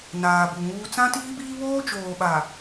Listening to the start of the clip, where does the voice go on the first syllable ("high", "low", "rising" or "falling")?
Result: low